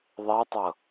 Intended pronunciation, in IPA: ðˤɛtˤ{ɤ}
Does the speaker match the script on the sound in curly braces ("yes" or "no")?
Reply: yes